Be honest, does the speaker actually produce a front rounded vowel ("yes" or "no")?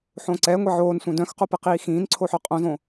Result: yes